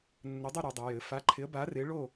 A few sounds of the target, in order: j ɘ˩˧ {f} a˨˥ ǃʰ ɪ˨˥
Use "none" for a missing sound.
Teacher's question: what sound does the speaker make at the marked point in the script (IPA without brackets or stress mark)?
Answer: f